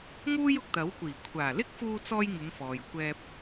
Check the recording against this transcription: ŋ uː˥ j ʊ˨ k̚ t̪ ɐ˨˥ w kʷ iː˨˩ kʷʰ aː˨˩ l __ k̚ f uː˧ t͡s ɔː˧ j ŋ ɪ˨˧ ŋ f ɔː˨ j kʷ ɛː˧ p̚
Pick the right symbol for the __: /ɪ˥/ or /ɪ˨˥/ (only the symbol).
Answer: ɪ˥